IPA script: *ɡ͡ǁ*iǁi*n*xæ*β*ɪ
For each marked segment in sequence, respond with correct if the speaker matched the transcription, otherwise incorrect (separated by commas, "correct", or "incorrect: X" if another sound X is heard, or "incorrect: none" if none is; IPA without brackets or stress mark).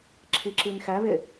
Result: incorrect: ǁʰ, correct, correct